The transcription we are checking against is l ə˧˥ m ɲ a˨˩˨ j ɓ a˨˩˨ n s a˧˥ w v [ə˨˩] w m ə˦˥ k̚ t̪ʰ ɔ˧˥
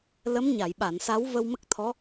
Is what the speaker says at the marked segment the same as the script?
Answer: no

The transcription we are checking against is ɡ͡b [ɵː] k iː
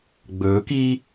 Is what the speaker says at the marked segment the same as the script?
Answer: yes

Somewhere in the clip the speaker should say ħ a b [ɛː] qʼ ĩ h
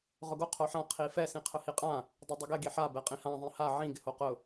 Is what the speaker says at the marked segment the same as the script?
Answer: no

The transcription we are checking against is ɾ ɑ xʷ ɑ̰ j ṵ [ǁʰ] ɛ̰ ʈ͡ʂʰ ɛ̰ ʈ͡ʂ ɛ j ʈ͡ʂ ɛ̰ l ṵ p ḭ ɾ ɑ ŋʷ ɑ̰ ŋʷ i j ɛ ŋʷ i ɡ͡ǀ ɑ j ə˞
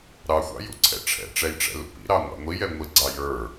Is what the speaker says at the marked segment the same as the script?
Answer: no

